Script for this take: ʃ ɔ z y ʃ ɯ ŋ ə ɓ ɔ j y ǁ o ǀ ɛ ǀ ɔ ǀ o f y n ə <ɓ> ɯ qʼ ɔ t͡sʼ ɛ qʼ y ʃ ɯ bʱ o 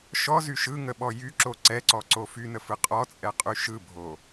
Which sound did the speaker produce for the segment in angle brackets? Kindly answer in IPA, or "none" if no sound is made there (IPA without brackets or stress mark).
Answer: f